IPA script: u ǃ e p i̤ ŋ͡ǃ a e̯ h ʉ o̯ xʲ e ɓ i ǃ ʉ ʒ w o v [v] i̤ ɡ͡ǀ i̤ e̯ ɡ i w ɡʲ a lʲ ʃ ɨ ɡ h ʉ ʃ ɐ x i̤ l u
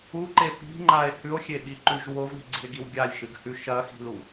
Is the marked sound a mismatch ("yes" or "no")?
yes